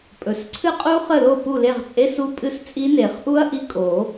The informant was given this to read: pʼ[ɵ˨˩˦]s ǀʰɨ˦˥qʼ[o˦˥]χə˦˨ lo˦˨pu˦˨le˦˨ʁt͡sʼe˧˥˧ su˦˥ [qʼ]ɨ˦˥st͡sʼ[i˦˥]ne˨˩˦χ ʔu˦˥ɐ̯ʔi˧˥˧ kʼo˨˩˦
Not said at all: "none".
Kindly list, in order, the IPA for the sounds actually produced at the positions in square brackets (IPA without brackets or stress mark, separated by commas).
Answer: ɵ˨˩˦, u˦˥, pʼ, i˦˥